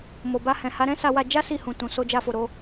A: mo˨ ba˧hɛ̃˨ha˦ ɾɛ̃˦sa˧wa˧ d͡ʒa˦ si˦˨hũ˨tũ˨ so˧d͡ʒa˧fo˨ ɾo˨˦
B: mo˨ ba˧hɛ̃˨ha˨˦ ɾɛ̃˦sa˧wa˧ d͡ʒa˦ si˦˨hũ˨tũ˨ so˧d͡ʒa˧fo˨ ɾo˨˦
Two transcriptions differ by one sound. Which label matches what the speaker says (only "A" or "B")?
B